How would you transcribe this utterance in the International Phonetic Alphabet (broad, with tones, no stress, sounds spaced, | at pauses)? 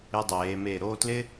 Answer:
ɪ˧ dˤ eː˩˧ m e˧˩ ɾ o˥˧ t l ɪ˥